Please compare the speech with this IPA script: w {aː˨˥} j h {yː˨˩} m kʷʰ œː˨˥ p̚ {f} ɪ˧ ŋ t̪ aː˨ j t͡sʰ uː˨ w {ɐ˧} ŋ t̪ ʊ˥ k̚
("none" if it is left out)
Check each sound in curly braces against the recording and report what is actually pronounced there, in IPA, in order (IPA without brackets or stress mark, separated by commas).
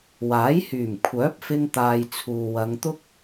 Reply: aː˨˥, yː˨˩, f, ɐ˨˧